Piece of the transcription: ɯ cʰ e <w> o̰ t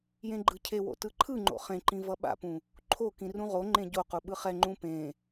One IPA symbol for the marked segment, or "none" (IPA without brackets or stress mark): w